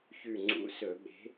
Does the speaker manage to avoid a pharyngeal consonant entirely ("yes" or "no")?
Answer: yes